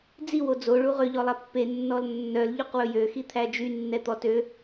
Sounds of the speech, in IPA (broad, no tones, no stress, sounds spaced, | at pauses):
d͡z i w o d͡z o ɭ u ʁ ø ʎ ɔ lˠ æ pː e nː ɔ l nː œ l ʎ u q w ɵ j ø x i t̪ʰ æ d͡ʒ y nː ɛ t̪ ɔ t ø